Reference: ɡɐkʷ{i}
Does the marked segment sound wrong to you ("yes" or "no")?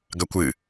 yes